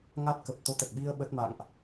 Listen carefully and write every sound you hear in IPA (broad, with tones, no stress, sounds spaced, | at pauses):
ŋ a˦˥ t̚ k ə˨˩ p̚ t̪ o˧ t̪ ə˨˩ t̚ ɓ i˧ ə̯ ɓ ə˦˥ t̚ m a̰˧˨ ŋ ʔ